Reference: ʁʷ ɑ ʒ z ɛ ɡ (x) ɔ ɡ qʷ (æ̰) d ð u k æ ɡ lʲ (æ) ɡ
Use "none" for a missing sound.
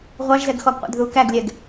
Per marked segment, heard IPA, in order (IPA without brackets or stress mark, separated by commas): x, æ̰, ɛ